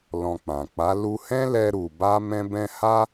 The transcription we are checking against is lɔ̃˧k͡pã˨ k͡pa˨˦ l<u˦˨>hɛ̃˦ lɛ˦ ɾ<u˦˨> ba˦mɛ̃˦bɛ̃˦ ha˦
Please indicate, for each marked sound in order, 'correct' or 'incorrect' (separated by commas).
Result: incorrect, incorrect